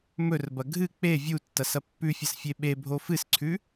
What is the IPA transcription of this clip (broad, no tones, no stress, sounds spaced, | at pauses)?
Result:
m ɵ r b ɐ ɡʱ ɨ k͡p e vʲ u tː ɐ s ɐ pː ʉ fʲ ɐ s fʲ e ɓ e bʱ o f ɨ s ǀʰ ʉ